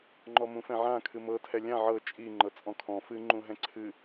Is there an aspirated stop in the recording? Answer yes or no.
yes